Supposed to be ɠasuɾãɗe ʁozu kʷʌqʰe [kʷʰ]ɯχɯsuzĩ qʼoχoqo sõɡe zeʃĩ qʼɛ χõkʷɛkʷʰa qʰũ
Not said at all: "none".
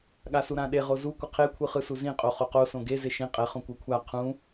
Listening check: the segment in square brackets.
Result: kʷʰ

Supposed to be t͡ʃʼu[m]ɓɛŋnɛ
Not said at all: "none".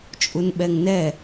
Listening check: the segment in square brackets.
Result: n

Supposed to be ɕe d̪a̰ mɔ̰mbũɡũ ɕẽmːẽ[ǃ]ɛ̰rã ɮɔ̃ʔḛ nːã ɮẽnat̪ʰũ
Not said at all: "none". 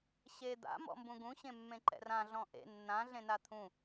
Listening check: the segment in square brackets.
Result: ǃ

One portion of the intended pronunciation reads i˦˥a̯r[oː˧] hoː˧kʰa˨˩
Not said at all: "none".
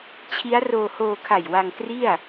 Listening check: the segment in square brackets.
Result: oː˧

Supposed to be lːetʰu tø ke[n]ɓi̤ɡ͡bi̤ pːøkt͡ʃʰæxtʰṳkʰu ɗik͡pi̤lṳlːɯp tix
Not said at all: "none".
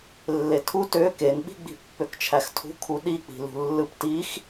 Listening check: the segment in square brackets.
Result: n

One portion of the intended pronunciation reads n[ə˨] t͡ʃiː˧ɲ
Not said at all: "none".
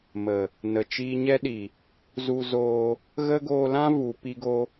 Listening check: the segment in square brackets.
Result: ə˨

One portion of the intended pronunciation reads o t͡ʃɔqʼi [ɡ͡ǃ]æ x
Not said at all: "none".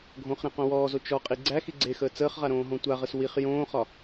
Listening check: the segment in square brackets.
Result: ɡ͡ǀ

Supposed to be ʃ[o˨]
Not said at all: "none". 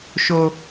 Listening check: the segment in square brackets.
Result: o˦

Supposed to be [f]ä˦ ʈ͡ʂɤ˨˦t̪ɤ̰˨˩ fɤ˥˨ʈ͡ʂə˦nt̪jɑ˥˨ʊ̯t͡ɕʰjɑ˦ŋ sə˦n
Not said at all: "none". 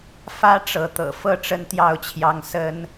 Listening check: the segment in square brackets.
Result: f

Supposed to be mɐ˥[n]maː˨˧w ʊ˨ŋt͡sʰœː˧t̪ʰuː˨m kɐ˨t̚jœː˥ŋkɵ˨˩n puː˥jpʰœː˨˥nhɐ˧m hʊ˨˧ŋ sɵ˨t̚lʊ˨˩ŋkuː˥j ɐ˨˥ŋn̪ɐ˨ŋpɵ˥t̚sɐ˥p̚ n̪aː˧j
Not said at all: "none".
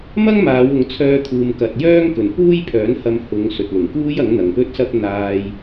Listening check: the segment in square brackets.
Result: ŋ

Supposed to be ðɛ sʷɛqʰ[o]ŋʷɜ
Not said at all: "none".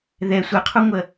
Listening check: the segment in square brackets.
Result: u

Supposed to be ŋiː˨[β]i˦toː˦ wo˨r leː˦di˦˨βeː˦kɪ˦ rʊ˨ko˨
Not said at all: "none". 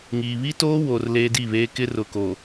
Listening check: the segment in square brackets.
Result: β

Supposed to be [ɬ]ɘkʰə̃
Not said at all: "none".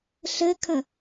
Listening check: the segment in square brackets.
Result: ɬ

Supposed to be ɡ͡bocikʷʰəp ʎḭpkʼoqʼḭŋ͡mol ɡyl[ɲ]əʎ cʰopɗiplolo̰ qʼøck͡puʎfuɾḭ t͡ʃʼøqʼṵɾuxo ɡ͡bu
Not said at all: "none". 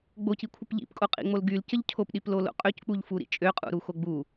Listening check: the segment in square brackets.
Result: c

